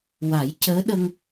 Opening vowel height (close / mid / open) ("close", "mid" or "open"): open